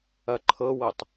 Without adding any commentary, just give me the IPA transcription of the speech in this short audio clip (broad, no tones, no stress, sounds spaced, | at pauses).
ɐ ǃʰ ɤ w ɤ tˤ